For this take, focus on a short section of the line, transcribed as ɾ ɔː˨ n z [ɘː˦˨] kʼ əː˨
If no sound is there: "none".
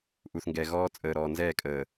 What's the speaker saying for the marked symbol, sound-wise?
ɛː˦˨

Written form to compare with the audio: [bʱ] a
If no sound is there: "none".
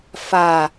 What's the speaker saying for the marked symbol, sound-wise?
f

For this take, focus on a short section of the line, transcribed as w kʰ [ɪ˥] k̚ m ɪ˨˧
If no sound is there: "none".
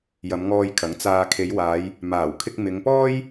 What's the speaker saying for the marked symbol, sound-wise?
ɪ˧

